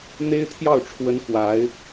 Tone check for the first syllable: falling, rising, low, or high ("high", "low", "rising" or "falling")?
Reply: high